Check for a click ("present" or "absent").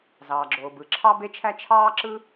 present